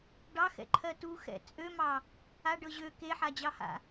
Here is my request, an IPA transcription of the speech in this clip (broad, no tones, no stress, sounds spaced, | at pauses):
ɖ ɑ x ɛ̰ ǃʰ ɜ t u x ɛ̰ t͡sʼ ø m ɑ | a ɖ ɤ ʑ ø k e ħ a d͡ʑ ɑ h a̰